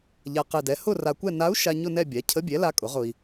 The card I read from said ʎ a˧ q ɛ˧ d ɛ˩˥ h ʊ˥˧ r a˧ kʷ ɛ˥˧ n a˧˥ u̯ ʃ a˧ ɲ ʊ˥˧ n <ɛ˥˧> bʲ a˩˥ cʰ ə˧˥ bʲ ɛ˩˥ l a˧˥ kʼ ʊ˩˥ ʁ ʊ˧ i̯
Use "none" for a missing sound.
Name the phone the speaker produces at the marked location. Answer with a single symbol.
ɛ˥˧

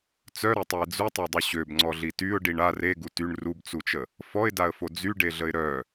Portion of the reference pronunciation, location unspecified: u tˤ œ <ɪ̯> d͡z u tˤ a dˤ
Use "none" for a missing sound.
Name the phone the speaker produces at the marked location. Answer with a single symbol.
ɪ̯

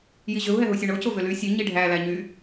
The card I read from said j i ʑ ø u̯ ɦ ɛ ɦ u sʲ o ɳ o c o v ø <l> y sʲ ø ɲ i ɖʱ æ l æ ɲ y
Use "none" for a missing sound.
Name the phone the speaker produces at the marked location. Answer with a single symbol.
l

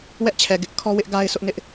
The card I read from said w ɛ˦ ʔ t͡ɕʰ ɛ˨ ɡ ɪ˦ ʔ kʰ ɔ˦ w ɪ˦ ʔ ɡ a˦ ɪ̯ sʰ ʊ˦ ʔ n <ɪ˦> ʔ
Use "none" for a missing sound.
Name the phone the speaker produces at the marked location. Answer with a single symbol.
ɪ˦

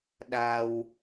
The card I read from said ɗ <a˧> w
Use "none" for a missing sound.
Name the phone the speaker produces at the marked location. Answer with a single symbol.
a˧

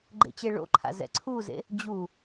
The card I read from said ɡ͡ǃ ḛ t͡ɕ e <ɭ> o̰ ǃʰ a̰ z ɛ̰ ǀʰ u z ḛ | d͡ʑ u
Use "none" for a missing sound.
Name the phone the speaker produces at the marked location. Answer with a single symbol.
ɭ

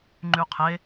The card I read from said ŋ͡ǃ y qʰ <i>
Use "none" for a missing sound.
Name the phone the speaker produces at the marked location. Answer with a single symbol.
e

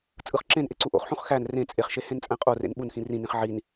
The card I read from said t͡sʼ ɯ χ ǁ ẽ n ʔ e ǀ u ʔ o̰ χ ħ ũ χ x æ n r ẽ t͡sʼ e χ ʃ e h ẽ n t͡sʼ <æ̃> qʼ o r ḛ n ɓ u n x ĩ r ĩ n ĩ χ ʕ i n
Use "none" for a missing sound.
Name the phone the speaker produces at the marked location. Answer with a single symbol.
æ̃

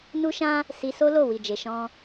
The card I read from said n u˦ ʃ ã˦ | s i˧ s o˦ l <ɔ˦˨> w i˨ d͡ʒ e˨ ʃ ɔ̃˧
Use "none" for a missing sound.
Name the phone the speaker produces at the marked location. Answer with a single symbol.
o˦˨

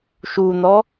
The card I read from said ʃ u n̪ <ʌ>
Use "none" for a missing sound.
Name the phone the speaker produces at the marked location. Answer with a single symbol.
ɔ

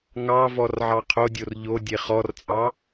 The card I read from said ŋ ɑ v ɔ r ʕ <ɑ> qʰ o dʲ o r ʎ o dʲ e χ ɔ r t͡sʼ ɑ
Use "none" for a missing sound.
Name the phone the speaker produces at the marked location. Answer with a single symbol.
ɑ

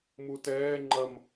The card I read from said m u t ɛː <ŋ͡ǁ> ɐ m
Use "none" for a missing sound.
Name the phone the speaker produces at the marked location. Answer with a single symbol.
ŋ͡ǃ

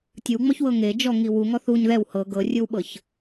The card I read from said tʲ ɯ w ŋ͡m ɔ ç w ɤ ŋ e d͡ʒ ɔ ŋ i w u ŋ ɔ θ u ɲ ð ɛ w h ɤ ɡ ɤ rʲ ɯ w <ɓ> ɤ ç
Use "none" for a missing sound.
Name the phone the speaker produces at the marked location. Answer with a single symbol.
ɓ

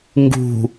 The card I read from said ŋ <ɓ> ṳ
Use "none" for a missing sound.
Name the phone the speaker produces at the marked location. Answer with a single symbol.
ɡ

